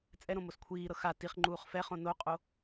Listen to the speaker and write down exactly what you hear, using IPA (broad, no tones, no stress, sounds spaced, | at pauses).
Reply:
t͡sʼ ɛ ɾ õ m o s kʷʰ iː ɾ ɤ x a t i χ ŋ͡ǃ uː χ f ɛ χ õ n o qʼ o